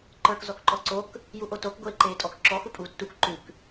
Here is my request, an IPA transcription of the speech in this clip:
ǃə˞k zɔkǃɔǀok | juʔotok ɡʷeːǃeːtʼɔk ǁɔ xupʼuːtːuk ǃʉk

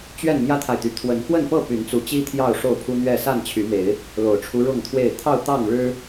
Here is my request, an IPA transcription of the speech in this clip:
t͡ɕɥɛ˥˨n mjä˦t̪ʰa˨ɪ̯t̪y˨˩ t̪ʰwə˨˦nkwə˥˨npɤ˥˨ py˨˦nt͡su˨˦t͡ɕi˦ t̪ʰjɑ˥˨ʊ̯ʂo˥˨ʊ̯pʰu˦n̪ɥɛ˥˨ sa˥˨nt͡ɕʰy˨˦me˨˦ɪ̯ | lo˨˩ʊ̯ʈ͡ʂʰu˦ ɻʊ˥˨ŋt̪ʰwe˥˨ɪ̯ t̪ʰɑ˥˨ʊ̯t̪ɑ˥˨ŋɻɻ̩˦

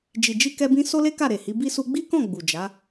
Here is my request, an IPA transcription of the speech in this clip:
d͡ʒi˨d͡ʒi˧kɛ˧bĩ˧ so˦le˦ ka˦˨ɾe˨hi˨˦ bi˧su˧ɡ͡bi˦kɔ̃˦˨ ɡ͡bu˨d͡ʒa˨˦

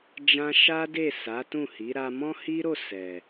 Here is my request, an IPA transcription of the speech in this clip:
d͡ʒã˦ ʃa˦de˦˨ sa˨˦tũ˦˨hi˨˦ ɾa˧mɔ̃˦hi˦ɾo˦˨ sɛ˨

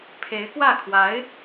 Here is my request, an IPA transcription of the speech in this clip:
pʰe˧˥ɪ̯kwä˥˩ kʰwa˧˥ɪ̯

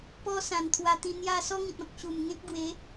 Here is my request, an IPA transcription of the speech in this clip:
pɔ˦sã˨˩n t̪ʰwa˧t̪ĩ˧ n̪ja˥˧ sɔ˦ŋĩ˨t̚ɔ̃˨k̚ ɕu˨˩mŋẽ˦k̚ ɡwe˨˦

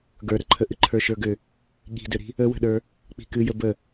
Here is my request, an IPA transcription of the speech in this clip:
ɡə˞ɾəǃʰə ʔɨǃʰə˞ʃə˞ɡʏ | ɠi̤dʏɾi̤ | əwə̤ɗə˞ | k͡pi̤kɨjə bə

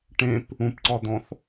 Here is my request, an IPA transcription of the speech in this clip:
ʈẽp | ũpǀɒd̪ɔ̃θ

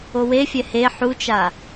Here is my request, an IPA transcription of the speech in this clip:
owefʲɛ he ħut͡ʃa

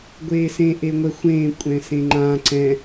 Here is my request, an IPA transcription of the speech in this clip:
ɡʷeːsẽ ʔeŋʷɛxʷẽː kʷʼɛ̃sẽŋ͡ǃã ǀɛ̃

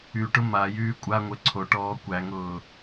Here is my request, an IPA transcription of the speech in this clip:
yʈʊ ma jyːkʷʼaŋʷɘ ǀʰoʈɔː kʷæŋʊː

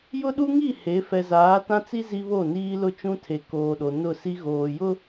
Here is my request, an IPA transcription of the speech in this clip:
jʊ˦ɗu˦ŋi˦˨ he˨˦ fɛ˨zaː˨˦tã˦t͡si˦ zi˦βo˦˨ niː˦lʊ˦ t͡ʃũ˦tʰe˨ koː˨ɗo˨ nʊ˦˨si˦ ɣoː˨jʊ˦

